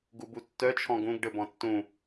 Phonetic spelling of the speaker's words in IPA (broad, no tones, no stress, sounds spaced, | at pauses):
ɡ u b u tː œ t͡ʃʰ ɔ̃ ɡ ũ ɡ ɖ ɘ b ɔ̃ tː ũ